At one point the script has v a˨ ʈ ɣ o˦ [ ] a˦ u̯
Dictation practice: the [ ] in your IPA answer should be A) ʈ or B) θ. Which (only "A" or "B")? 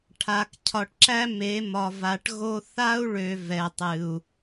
B